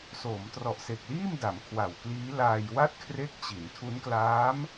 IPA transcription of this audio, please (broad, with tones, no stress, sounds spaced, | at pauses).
s oː˩˦ m t r ɔ˨˩ ʔ s e˨˩ k̚ l iː˥˩ m d a˩˦ m kʰ w a˨˩ w k l iː˦˥ l aː˧ j w a˥˩ t̚ kʰ r e˦˥ k̚ t͡ɕ i˩˦ n tʰ u˦˥ n k l aː˦˥ m